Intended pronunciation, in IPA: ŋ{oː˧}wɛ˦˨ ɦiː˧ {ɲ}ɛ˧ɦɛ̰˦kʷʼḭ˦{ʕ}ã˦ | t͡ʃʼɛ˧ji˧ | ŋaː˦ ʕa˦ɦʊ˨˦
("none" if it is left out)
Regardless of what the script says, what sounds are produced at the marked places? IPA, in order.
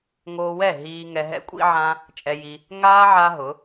oː˧, ŋ, ʕ

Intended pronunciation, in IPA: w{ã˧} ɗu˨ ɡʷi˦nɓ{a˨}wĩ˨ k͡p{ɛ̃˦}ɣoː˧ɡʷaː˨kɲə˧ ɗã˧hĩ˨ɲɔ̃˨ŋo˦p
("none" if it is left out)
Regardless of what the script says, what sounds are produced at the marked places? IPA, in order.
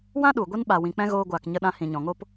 ã˦, a˨, ɛ̃˦

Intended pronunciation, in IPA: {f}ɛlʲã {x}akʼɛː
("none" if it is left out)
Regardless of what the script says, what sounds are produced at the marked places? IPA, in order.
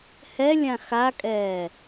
h, x

